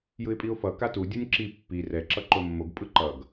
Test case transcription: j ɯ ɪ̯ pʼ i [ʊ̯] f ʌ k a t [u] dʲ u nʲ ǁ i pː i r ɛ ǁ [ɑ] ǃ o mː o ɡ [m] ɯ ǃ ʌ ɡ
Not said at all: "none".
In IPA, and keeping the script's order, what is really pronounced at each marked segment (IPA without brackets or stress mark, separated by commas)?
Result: ʊ̯, u, ʌ, pʼ